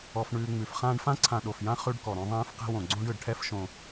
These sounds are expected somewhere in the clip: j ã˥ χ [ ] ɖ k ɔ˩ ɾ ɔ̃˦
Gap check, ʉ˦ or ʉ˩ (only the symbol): ʉ˦